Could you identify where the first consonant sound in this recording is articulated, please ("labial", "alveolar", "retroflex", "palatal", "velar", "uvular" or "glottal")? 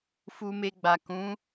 labial